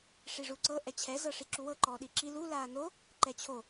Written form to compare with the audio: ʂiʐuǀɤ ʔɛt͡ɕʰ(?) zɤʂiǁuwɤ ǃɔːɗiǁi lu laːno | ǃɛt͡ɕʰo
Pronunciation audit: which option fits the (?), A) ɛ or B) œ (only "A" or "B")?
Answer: A